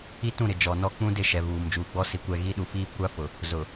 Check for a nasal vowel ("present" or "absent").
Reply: present